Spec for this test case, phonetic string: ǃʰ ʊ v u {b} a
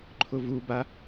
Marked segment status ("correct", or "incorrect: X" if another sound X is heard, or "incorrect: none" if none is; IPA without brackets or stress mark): correct